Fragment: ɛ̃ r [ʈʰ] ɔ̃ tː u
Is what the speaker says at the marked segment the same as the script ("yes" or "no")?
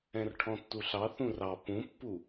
yes